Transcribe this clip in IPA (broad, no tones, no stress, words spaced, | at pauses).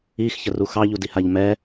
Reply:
ixçəru xɑʎudihaʎ mɛ